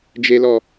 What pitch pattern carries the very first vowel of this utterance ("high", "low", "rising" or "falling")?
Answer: high